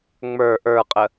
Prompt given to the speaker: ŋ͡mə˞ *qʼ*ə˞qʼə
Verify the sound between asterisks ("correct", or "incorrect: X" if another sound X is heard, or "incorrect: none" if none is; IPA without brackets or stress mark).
incorrect: ʔ